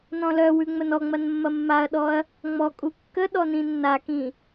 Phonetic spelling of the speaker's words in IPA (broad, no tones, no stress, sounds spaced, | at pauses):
n ɔ̃ l œ w ʉ ŋ͡m ə n ɔ ŋ͡m ɐ n mː ɐ mː a ɐ̯ ɗ ɔ ɐ̯ | ŋ͡m ɔ kʼ u kː ə ɗ ɔ n ĩ nː a k ĩ